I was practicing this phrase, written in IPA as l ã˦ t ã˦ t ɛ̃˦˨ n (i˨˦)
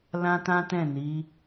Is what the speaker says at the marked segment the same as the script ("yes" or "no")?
yes